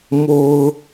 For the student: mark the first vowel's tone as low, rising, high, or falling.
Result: low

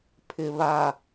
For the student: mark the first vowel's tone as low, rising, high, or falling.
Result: low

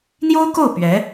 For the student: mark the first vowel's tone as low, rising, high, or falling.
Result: high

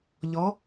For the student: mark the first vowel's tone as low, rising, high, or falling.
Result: rising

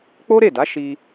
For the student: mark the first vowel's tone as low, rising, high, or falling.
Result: high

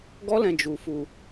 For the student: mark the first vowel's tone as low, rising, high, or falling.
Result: high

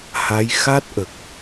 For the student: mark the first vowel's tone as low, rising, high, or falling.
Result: rising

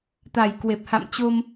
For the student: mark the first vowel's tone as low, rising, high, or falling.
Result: low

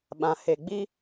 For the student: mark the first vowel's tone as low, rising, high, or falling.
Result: low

